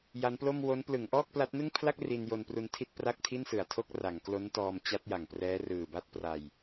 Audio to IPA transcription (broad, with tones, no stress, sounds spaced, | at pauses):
j a˦˥ n p l o˥˩ m w o˦˥ n p l ɯ˩˦ ŋ ʔ ɔː˥˩ k̚ p l a˦˥ t̚ n ɯ˥˩ ŋ pʰ l a˥˩ k̚ r i˧ n j o˧ n p r u˧ n tʰ i˥˩ t̚ p r a˥˩ k̚ tʰ i˥˩ n s ɯ˨˩ a̯ tʰ o˥˩ k̚ r a˩˦ ŋ k l o˦˥ n t ɔː˧ m t͡ɕ a˦˥ t̚ j a˨˩ ŋ p r ɛː˦˥ r ɯː˨˩ b a˥˩ t̚ p r a˧ j